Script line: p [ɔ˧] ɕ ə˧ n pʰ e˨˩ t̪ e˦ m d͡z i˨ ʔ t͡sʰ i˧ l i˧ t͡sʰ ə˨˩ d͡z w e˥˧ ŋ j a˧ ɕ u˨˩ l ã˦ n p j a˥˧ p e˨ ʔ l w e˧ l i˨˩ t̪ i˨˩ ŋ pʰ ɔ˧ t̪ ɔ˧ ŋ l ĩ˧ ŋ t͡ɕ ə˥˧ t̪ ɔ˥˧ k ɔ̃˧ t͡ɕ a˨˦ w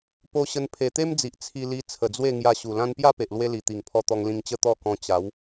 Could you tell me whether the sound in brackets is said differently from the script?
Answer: yes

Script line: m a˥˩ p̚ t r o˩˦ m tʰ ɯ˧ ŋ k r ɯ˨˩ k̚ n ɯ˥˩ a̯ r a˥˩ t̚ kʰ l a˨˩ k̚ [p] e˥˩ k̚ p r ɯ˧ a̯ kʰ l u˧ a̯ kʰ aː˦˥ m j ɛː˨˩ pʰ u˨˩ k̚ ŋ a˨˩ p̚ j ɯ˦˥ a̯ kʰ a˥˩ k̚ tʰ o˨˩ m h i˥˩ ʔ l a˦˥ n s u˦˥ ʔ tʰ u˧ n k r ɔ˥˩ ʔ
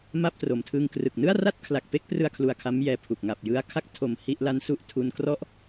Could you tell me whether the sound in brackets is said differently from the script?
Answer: no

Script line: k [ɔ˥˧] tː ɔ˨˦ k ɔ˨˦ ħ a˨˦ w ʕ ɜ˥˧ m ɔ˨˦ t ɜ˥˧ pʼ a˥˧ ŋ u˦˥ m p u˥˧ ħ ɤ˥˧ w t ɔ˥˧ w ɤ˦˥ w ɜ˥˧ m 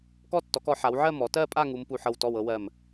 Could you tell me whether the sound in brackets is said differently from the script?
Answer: no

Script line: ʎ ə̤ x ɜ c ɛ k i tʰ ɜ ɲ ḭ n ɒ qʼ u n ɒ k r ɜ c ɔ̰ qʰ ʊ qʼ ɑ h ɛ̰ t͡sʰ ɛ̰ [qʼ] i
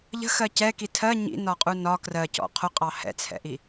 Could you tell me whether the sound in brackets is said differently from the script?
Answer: yes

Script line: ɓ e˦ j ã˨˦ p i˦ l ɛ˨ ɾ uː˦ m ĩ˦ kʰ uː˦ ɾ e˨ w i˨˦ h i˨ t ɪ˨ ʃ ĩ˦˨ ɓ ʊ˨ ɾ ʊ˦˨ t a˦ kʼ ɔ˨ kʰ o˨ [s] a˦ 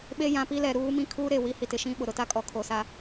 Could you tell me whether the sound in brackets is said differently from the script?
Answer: no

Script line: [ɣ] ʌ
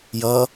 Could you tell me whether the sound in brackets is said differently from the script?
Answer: yes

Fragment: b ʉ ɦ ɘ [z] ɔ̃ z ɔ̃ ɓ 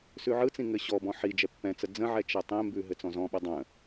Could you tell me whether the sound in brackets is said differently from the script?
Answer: yes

